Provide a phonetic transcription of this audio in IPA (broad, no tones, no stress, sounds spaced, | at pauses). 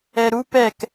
ɛ ɾ u p ɛ k